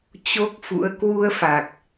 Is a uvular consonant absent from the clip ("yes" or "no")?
yes